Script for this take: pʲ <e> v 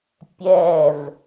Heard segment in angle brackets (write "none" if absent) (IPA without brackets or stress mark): ɛ